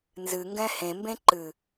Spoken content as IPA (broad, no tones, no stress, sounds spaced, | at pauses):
n z ɨ ŋ ɡ ɛ̃ h ẽ m b ẽ ǃ ɨ